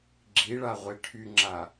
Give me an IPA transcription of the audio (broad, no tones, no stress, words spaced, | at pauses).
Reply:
ɡ͡ǁiɭaʁʷe ʈʰyŋ͡ǁa